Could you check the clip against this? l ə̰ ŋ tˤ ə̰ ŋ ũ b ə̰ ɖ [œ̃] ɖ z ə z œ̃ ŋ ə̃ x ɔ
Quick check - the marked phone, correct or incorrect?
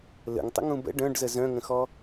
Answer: correct